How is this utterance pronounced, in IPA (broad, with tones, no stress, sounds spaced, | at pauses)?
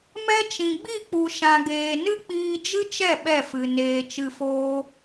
m ɛ˧ t͡ʃ ĩ˨ ɡ͡b i˦˨ k͡p u˨ ʃ ã˨ ɡ eː˨ n ɨ˦ k͡p iː˧ d͡ʒ ɨ˦ t͡ʃ ɛ˦˨ ɓ ɛ˦˨ f ɨ˨ n eː˨ t͡ʃ ɨ˨ f oː˧